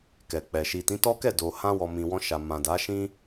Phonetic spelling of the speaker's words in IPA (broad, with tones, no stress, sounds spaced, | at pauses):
k ɛ˨ k͡p ɛ˨ ʃ i˨ t ĩ˨˦ t ɔ˦ k ɛ˦˨ d o˨ h ã˧ w ɔ˨ m ĩ˨ w ɔ̃˧ ʃ a˨ m ã˨ d a˨˦ ʃ ĩ˦